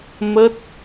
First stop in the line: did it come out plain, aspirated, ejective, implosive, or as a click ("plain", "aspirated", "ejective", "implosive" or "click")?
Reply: plain